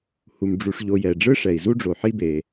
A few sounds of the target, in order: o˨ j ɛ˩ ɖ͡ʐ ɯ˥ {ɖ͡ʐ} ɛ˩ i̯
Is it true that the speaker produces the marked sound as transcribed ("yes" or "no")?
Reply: no